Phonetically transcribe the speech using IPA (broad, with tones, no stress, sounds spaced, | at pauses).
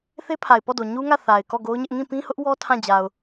θ e˦ pʰ a˨ ɪ̯ p ɔ˦˨ d o˨ ɲ u˦ ŋ ä˦˨ θ a˨ ɪ̯ k ɔ˦˨ ɡ o˦ ʊ̯ ɲ ɪ˦ ʔ ŋ ĩ˦˨ p ĩ˦ h ʊ˦ ʔ w ɔ˦ tʰ ã˦˨ d͡ʑ a˨ ʊ̯